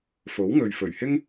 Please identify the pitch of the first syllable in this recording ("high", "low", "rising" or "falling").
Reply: rising